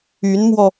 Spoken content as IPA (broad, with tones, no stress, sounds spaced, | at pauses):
y˧˥ n m w ɔ˧